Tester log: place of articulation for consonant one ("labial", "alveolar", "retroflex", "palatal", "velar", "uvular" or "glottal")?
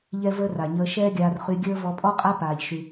palatal